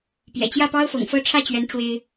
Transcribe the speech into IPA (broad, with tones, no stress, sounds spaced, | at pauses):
p j ɛ̰˨˩ t͡ɕ j ä˥˩ p ɑ˥ ʊ̯ f ɤ̰˨˩ ŋ f ɤ˥˧ ʈ͡ʂʰ ä˥˩ t͡ɕ ɥ ɛ˧˥ n ʈ͡ʂ w e˥ ɪ̯